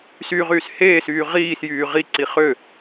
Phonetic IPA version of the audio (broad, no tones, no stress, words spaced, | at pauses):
syʁyːs heːsyː ʁiːsjyː ʁiǀi χø